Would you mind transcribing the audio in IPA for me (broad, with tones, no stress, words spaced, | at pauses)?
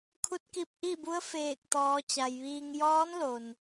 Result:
kʰu˧˥t̚ki˧p̚ ʔi˥˨bu˧˥ə̯ feː˧˩k̚t̪ɔː˩˧t͡ɕa˩jʋiː˧ŋ jɔː˧˥nlo˩n